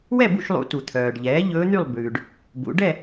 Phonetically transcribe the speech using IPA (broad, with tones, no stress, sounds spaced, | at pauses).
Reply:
w ɛ˥˨ b ṵ˥˨ ʃ lˠ ṵ˩˧ t u˩ t̪ʰ œː˩ ɖ ʎ ɛː˩˥ ʎ ɵː˧˥ n̪ y˥˨ lˠ b ʉː˩ ɖ | b ṵ˩˧ ɖ ɛ˥˨